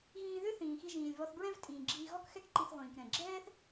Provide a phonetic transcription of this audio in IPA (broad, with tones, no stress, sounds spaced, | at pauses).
ɣ ĩː˧ ð ʏ˥ θ ĩː˩ x i˧ ʒ ĩː˩ lʲ β ɔ˧ θ b ɹ ɛ̃˥ v tʼ ĩː˩ ɡ͡ǁ iː˧ ɣ ɔ˥ k x ɛ˥ k ǃ i˧ θ ʁʷ ĩː˩ k ɾ ɛ̃˩ ɡ͡ǁ ɛː˥ θ